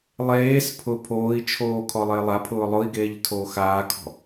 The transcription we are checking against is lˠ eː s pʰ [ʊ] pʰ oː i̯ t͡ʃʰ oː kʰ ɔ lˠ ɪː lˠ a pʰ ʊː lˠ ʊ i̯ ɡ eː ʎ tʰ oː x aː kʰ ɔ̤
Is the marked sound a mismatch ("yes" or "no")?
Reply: no